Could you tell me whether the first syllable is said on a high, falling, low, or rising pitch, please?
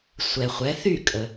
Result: low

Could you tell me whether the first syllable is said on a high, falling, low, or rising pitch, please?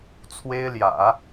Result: high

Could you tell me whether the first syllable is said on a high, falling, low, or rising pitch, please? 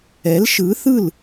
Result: rising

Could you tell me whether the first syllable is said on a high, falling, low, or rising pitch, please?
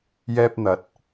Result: high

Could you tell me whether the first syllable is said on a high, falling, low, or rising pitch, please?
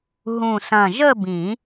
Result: low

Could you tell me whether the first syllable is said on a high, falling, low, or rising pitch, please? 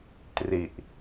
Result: low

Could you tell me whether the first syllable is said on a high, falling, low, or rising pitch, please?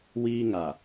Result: high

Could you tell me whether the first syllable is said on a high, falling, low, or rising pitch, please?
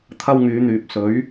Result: high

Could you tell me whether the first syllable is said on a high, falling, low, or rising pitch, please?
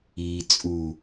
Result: low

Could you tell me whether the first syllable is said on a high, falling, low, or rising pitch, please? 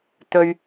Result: high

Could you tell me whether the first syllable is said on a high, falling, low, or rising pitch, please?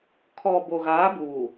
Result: low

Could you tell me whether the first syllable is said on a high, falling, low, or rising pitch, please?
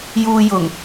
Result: low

